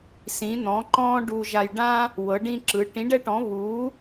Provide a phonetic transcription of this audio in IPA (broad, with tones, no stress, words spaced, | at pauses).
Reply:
sĩ˧˥n̪ɔ̃˧˥ǃɔ̃ː˥ ɖu˥ʒa˥j ɖã˥ | wɤ˧˥ɖĩ˥ǁɯ˧˥ ʈĩ˧˥ɖɛ˥ʈɔ̃˧˥βuː˧˥